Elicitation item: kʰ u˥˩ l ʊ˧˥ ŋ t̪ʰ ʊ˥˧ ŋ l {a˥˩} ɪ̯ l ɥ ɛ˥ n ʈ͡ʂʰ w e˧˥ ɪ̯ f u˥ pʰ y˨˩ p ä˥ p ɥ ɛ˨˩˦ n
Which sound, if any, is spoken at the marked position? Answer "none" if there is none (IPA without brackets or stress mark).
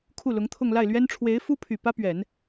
a˥˩